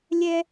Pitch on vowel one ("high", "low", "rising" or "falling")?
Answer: high